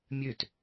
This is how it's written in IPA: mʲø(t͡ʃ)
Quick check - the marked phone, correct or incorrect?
incorrect